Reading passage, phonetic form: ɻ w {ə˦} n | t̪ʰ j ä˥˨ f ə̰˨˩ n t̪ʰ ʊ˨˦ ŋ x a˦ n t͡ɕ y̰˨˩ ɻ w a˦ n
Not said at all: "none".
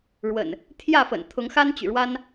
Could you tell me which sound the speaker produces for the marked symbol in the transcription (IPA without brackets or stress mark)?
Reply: ə̰˨˩